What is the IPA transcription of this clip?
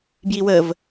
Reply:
b j i w ə v

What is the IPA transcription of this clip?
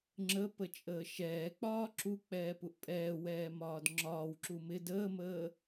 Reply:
ŋ͡ǁ ə p ə t͡ʃʼ əː ʃ ɛː k͡p ɒː ǁ u k͡p ɛː p u ʔ pʼ ɛː w ɛː m ɒː d ŋ͡ǁ ɒː w ǁ u m ɪ d əː m əː

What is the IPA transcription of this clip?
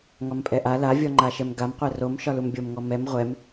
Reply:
ŋ ɒ m pʼ ɛ ʔ a l a vʲ ɔ ŋ͡ǃ a ʃ ɛ m ɡ a m qʷ ɛ r o m ʃ ɒ l u m bʲ o m ŋ ɔ m ɛ m ʁʷ ɛ m

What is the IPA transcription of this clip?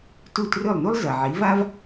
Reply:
t u˥˩ t r ɵ˥˩ lˠ n u˥ lˠ z ɐ˩ ʕ i˩˥ v a˥ v

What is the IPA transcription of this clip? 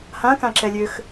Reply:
h ã k ã ǁ ɛ lʲ ø x

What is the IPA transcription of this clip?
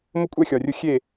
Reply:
m ʊ˦ kʷʼ ɛ˦˨ xʲ ɒ˨ rʲ ʊ˦ xʲ e˦˨

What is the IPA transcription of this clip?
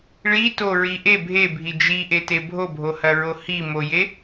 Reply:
ɭ i t o ɹ i ʔ e bʱ e bʱ i d͡ʒ i ʔ e t e bʱ o bʱ o h ɐ ɹ o h i m o j e

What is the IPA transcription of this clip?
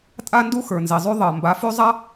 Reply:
tʼ a˦ n d u˦ x ə˞˨ n z i˨ zˤ y˦ ðˤ ɜ˨ m b a˨˦ f y˦ zˤ a˦

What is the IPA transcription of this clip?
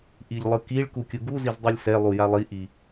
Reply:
ʔ i ʎ lˠ ɯ k i ɭ k u kʲ ɯ ɡ u z i z dˤ ɯ lʲ s ɛ lˠ u j a lˠ i ʔ i

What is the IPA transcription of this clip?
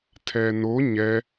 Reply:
tʰ ɛ n o ɲ ɛ

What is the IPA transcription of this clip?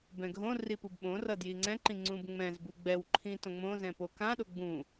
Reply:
b ɛ̃ ɡʱ õ r i p u b ɓ õ r ʌ d j i ŋ͡ǀ ɛ̃ ǃ ĩ ŋ͡ǀ ũ b ŋ͡m ɛ̃ z b u ɡ͡b ɛ w ǃʰ ĩ t õ ŋ͡m õ z ɛ̃ p o k ã ɗ o ɡ͡b ũ

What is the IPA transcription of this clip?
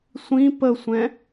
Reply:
sʷ ĩ p ə sʷ ɛ̃

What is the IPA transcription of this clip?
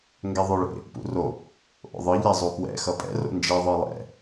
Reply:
ŋ ɡ ɛ ðˤ o ɭ ḛ | p ṵ r o | ʔ o̰ ðˤ ɯ ʎ ɛ zˤ u p w ɛ̰ x ʌ pʼ ɛ̰ r o̰ n d͡ʒ i ðˤ ɯ lˠ ɛ̰

